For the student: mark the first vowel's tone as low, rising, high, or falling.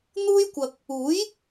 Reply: high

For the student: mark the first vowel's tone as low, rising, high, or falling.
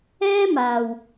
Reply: high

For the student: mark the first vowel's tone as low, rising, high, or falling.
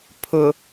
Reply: low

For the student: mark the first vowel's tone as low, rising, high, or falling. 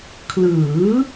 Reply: rising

